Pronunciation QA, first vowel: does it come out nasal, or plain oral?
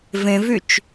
nasal